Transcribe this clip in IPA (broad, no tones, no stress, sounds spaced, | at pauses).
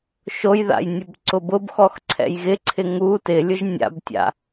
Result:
ʃ o j ð a̰ j nʲ ʊ b ǀ ʊ b ʊ b x ɔ x ǀʰ ɛ̰ j ɣ ɪ ǀʰ ɪ ŋ u t ɪ lʲ ʊ ʒ nʲ a̰ b tʲ a̰